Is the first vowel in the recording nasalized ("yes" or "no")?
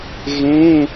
yes